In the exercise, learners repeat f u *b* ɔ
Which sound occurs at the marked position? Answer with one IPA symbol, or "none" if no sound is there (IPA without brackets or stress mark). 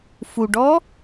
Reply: ɖ